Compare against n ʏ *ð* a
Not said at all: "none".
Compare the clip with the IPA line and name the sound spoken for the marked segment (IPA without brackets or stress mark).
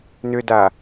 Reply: d